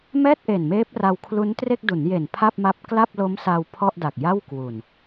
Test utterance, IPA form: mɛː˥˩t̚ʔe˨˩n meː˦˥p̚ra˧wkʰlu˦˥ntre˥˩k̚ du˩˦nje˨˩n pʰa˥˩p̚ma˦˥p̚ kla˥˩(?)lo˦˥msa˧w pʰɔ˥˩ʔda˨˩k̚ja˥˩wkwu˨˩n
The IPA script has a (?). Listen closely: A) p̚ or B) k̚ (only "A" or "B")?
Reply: A